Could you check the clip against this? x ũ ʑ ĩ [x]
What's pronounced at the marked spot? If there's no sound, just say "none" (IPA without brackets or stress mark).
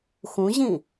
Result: none